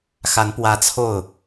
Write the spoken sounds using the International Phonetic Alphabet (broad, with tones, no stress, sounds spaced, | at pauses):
x a˧˥ n p w ä˧˥ t͡sʰ o˥˩ ʊ̯